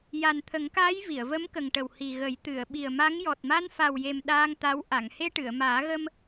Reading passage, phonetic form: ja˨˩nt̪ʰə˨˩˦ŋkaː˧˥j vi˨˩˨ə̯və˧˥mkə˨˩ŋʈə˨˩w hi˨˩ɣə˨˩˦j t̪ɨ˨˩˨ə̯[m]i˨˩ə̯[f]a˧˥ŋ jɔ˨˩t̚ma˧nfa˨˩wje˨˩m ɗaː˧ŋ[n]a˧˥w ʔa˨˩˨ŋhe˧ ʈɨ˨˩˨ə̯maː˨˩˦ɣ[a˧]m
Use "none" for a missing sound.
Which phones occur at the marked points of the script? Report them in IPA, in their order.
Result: ɓ, m, t̪, ə˧

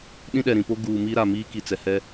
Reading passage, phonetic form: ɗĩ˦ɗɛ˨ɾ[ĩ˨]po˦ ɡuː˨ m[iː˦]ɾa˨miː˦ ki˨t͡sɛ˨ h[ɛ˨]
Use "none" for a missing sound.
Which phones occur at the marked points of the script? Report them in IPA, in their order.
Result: ĩ˨, iː˦, ɛ˦

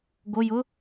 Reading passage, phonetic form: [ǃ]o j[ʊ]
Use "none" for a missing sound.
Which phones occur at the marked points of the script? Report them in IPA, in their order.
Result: ɡ, ʊ

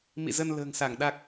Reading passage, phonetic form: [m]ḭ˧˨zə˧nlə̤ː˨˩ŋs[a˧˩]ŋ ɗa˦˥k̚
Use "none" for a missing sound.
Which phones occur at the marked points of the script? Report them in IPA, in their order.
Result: m, a˧˩

